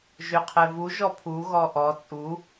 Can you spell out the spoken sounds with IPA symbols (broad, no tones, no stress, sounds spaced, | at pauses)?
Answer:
ʒ ø qʰ ɛ v u ʒ ɔ pʰ u ɣ ɔ ʔ ɔ t͡sʼ u